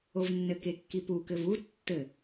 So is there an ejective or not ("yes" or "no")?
no